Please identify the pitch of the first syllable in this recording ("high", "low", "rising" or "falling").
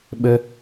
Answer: high